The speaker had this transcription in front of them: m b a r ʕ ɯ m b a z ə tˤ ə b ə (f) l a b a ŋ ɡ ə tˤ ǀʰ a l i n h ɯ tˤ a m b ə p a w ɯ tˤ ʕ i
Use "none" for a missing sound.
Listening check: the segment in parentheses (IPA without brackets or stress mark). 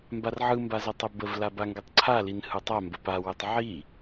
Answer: v